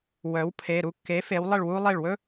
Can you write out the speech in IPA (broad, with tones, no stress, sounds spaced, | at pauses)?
w œ˩˥ w pʰ e˩˧˩ ɾ u˥˩ kː e˩˥ f e˩˧ w lˠ ə˥˩ ɭ w u˥ lˠ e˥˩ ɭ w ɵ˥